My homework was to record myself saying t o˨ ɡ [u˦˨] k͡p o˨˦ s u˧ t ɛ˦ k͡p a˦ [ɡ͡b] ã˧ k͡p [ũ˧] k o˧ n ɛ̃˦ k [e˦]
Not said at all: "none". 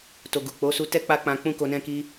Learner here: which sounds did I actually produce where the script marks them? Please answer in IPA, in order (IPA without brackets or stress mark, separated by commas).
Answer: u˨, k͡p, ũ˦, i˦